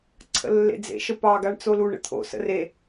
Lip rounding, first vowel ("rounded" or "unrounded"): unrounded